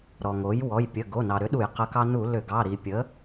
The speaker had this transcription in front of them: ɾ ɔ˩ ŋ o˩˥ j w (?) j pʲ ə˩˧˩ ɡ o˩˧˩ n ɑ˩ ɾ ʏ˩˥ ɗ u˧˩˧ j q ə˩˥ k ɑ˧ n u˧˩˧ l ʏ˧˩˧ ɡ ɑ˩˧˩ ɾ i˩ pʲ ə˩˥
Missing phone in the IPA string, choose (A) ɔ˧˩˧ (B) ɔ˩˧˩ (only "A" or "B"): B